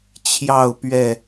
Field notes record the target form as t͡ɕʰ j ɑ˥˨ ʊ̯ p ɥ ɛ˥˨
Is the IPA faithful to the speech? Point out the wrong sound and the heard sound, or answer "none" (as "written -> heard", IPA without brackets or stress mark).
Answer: none